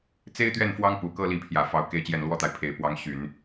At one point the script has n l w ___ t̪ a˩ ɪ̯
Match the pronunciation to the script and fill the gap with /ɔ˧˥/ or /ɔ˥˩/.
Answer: ɔ˥˩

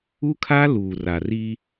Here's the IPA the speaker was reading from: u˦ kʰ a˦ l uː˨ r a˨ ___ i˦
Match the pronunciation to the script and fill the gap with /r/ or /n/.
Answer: r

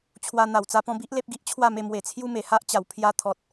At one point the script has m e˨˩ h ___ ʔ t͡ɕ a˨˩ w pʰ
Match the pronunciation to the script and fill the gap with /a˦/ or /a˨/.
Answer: a˦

